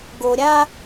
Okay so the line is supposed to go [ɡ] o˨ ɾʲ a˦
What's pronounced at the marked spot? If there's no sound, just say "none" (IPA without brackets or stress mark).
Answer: ɡ